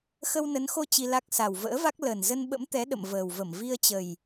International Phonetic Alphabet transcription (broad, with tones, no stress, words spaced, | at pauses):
xə˧wnə˨˦nxo˧ t͡ɕi˧la˦˥k̚ sa˨˩wvə̰ː˧˥va˦˥k̚ lə˨˩n zə˧nɓə̰˧˥mt̪ɛ˨˦ ɗə̰˧˨mvəː˨˩wvə˧˩m vi˧ə̯t͡ɕə˨˩j